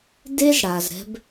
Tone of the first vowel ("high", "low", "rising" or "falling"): high